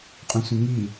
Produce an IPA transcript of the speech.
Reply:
qʼũsʷɛ̃ŋi

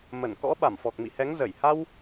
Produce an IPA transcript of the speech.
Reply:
mə˧˩nkɔ̰˧˥ ɓa˧˩mfɔ˨˩k̚mḭ˧˨hɛ˨˦ŋ zə˧˩j ha˧w

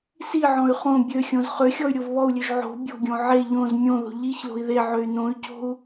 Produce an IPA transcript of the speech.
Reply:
siʕɔ̃y̯ χõ bʲøxʲõz χøxʲɔy̯ ɾʲovβɔu̯lʲøʒ ʕo̤ bʲo̤ɡʲõ ʕe ʎõz mʲõðo̤ ʎiçlo̤i̯ ðeʕøy̯ nõy̯co̤u̯

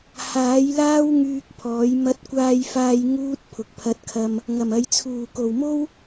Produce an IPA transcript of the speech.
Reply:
haː˨˥jlaː˥w ŋyː˧k̚pʰɔː˨˥j mɐ˧t̚kʷaː˧jfaː˧j ŋuː˥t̚ pʰʊ˨k̚pʰɐ˧t̚kʰɐ˧m | ŋɐ˨˩mɐ˨˧j t͡sʰuː˨˩ko˨˩wmo˥w

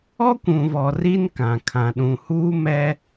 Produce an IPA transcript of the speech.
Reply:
ɔ˦kʷũ˨vɔ˨ ri˦nkã˨kʰã˨ ɗũ˨huː˦ mɛ˦

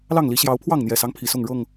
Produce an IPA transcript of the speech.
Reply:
lɑ˥˨ŋli˨˦ ɕjɑ˨˦ʊ̯pʰwɑ˥˨ŋn̪jɛ˨˩sɑ˦ŋ pʰi˨˦sʊ˥˨ŋɻɤ˥˨ŋ

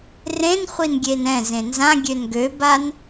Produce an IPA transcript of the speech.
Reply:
rẽnχʷinɡʲen ɛ̃ zẽnzã ɡʲønɡøban

